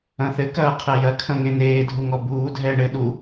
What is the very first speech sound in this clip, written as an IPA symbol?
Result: ɐ̃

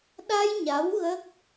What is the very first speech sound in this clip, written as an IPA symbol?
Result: ɗ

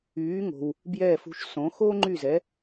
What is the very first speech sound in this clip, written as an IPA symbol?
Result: yː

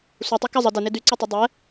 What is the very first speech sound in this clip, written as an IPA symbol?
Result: sʷ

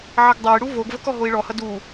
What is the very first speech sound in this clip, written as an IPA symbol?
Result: ʕ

